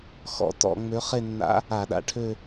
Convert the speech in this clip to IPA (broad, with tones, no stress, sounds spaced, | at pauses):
x ɔ̰˩˧ t ɔ̰˧˩˧ ŋ͡m ø˧˥ χ e˥˧ nː a̰˧˥ | a˧˩˧ ɗ a̰˨˩ ʈʰ ø˥˧